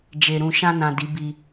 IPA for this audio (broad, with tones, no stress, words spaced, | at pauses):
d͡ʒe˨ ɾũ˨ʃã˧nã˨ di˨˦ bi˧